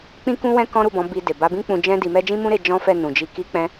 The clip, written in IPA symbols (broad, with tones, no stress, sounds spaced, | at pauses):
k͡p ĩ˦ k ũ˦ w ɛ̃˦ k ɔ̃˦ ɾ u˦˨ b ɔ̃˨˦ b i˧ d e˨ b a˨˦ b ĩ˦ k͡p ũ˧ d͡ʒ ɛ̃˦ d i˧ m ɛ˦ d͡ʒ ĩ˦ m ũ˦ ɾ e˧ d͡ʒ ɔ̃˦ f ɛ˦˨ n ũ˨ d͡ʒ i˧ k i˦ k͡p ɛ̃˦